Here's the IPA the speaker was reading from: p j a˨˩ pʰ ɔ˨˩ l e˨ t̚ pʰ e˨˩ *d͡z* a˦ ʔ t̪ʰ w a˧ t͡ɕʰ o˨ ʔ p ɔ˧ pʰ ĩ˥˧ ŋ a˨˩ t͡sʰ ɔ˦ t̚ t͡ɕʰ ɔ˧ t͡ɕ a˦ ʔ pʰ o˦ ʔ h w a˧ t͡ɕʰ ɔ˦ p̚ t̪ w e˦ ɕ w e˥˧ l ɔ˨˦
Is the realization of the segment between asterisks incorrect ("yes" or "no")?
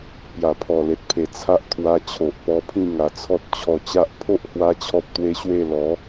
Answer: yes